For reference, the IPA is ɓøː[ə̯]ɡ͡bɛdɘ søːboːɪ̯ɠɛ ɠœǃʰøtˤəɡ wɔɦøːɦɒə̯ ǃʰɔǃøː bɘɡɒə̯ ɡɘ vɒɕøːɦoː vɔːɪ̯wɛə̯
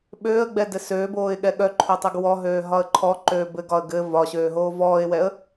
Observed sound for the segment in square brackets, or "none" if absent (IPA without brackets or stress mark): ə̯